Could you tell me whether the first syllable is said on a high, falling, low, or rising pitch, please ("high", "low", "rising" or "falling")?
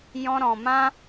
high